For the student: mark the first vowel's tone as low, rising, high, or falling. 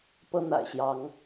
high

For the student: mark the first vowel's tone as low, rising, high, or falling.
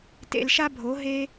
low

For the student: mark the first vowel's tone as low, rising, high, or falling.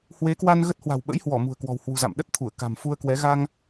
rising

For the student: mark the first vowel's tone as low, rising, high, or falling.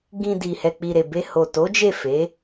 low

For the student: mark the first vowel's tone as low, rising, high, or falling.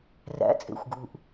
rising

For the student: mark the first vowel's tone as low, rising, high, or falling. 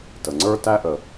low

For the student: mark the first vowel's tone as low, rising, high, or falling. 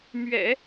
low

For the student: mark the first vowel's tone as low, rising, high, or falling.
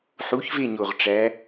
rising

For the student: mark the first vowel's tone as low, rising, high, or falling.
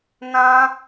high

